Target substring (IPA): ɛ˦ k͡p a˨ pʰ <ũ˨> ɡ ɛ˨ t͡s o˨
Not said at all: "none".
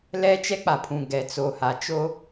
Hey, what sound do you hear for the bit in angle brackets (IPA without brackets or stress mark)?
ũ˨